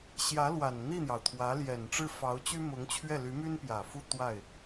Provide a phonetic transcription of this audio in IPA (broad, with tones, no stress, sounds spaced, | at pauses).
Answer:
ɕ j ä˧˥ l w a˨˩ n n̪ i˥˩ n̪ j ɑ˩ ʊ̯ t̪ʰ w ä˧˥ l j ɛ˨˩ n ʈ͡ʂ ɻ̩˥˩ f ɑ˧˥ ʊ̯ t͡ɕ y˥ m ʊ˧˥ ŋ t͡ɕʰ ɥ ɛ˥˩ l y˧˥ m y˥ n p j ä˨˩ f u˥˧ t̪ w a˥˩ ɪ̯